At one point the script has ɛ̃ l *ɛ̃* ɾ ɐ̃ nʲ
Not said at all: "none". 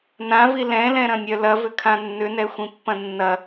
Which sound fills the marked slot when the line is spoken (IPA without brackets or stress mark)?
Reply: ɛ̃